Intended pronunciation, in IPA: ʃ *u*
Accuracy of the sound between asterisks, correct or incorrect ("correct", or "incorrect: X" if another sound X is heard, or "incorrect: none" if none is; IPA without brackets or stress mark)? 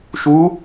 correct